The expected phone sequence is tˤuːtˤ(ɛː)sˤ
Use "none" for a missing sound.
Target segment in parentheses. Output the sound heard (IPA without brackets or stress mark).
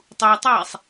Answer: ɛː